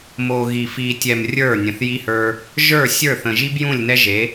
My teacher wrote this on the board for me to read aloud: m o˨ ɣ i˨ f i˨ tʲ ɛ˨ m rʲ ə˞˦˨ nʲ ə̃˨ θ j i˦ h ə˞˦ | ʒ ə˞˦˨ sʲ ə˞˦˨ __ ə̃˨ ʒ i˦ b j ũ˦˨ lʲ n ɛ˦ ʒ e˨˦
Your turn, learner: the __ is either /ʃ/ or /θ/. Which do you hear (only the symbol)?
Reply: θ